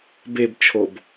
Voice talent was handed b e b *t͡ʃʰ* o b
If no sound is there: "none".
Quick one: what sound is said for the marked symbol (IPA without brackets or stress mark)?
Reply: t͡ʃʰ